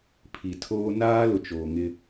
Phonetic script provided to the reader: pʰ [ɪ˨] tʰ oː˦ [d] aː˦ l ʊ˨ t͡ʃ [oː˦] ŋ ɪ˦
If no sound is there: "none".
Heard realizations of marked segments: i˨, n, oː˨

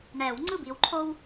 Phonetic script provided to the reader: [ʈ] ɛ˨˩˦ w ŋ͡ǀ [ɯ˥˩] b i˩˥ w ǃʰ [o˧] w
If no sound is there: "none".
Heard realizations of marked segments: ɳ, ɯ˥˩, o˧

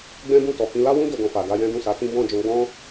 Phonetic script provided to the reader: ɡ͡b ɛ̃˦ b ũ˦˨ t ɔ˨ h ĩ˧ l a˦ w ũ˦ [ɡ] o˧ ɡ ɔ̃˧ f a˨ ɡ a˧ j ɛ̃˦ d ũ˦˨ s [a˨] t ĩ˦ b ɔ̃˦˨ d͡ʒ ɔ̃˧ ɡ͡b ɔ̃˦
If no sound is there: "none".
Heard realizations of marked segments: d, a˨˦

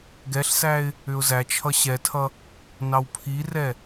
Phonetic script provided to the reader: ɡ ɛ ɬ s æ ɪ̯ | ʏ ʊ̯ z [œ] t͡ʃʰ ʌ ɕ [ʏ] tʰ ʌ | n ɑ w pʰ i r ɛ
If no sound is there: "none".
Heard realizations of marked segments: æ, ɛ

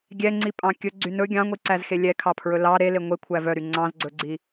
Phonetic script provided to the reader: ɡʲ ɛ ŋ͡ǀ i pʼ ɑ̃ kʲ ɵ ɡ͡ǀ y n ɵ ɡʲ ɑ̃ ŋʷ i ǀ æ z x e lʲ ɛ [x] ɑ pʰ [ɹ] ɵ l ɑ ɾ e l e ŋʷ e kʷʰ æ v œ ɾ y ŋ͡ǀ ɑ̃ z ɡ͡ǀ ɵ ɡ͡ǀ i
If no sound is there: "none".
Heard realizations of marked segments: kʰ, ɹ

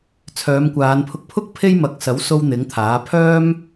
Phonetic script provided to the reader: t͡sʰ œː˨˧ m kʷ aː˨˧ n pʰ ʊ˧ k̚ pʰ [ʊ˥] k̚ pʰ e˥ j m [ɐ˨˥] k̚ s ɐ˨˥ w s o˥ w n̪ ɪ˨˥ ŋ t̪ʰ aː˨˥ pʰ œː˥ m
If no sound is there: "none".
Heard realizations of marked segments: ʊ˥, ɐ˨˥

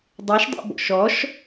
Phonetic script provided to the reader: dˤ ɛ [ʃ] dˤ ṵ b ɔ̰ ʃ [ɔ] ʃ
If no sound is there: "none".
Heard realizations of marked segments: ʃ, ɔ

